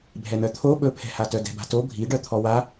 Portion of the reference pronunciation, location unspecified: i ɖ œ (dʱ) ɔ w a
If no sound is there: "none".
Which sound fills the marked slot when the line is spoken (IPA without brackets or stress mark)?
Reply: t̪ʰ